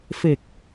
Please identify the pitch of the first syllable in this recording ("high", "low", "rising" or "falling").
low